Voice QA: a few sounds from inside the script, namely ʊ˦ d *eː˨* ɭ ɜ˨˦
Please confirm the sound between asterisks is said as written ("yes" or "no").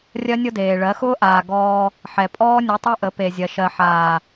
yes